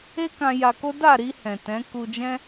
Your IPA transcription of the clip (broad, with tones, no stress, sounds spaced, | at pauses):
e˦ k ã˧ j a˧ k o˦ d a˦˨ ɾ i˧ h ɛ̃˨ t ɛ̃˨˦ k u˧ d͡ʒ ɛ̃˦